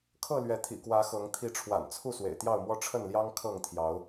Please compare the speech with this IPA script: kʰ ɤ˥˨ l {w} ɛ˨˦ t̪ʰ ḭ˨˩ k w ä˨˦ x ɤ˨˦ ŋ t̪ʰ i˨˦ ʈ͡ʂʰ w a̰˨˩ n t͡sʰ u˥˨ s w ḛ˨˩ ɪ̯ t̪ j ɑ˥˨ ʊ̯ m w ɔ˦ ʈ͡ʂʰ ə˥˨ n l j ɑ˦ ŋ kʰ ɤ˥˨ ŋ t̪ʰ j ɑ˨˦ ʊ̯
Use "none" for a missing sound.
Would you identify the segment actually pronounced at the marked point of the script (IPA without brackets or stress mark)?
ɥ